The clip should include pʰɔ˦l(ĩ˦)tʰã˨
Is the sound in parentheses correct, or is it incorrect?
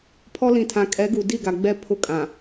incorrect